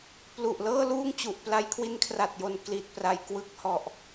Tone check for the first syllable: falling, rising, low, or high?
low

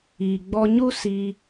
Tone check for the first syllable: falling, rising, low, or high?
low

